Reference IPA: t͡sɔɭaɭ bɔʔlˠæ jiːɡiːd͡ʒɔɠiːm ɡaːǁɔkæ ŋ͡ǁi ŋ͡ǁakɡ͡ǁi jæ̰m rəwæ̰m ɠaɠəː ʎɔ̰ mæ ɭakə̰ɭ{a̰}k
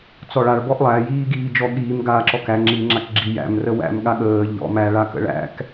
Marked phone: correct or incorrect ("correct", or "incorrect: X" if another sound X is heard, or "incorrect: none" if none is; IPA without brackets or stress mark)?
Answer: incorrect: æ̰